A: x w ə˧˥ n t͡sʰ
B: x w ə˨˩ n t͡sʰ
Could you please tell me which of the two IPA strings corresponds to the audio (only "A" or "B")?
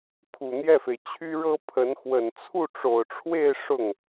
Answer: B